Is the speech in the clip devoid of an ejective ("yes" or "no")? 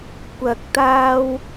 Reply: yes